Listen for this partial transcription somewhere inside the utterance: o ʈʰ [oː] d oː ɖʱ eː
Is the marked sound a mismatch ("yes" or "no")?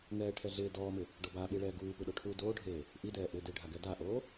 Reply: yes